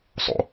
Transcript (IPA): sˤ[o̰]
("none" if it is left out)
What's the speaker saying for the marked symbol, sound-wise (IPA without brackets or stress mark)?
o̰